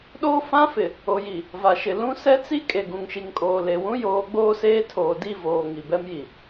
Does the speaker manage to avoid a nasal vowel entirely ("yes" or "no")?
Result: no